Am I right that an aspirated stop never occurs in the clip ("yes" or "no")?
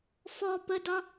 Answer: yes